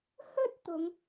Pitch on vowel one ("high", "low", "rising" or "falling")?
high